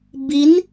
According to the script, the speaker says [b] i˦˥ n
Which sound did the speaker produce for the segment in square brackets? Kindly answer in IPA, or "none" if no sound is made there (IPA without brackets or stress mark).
b